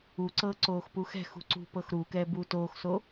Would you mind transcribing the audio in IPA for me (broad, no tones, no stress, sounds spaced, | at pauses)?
u ǀ ɤ ǀ oː x p u x ɛ̤ x ṳ ǀ ṳ p ɤ x ɾ u k ɛː b uː t oː x s o